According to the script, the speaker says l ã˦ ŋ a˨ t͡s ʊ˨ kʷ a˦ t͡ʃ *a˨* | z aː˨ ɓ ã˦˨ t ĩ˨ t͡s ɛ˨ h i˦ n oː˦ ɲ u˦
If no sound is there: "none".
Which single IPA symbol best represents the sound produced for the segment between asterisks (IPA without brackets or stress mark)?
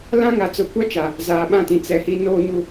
a˨